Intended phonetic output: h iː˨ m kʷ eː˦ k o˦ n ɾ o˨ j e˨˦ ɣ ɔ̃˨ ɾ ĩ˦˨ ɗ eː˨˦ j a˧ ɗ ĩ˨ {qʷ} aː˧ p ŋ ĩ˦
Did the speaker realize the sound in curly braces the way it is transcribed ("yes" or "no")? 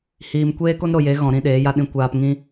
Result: no